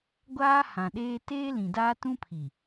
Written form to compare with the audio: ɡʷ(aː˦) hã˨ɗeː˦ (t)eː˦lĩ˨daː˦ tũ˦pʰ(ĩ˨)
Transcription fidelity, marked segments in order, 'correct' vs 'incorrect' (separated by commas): correct, correct, incorrect